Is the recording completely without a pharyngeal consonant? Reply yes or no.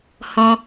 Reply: yes